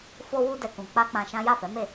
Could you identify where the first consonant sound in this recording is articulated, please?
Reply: labial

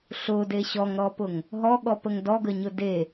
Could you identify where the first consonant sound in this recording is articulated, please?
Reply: alveolar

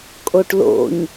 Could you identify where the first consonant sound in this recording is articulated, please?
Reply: velar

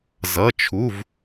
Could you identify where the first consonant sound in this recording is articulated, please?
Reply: alveolar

